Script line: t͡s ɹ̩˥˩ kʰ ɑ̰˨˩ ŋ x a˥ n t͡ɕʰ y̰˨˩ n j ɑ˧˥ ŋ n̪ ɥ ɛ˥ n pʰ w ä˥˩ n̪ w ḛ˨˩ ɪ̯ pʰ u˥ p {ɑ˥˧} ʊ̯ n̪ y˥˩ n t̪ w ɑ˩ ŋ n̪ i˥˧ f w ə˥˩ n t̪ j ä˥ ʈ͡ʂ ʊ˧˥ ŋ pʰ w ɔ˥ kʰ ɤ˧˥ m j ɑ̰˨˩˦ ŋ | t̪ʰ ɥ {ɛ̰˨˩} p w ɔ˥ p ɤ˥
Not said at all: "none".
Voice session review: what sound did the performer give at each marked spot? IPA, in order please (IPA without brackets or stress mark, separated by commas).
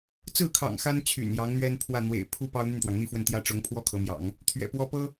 ɑ˥, ɛ̰˨˩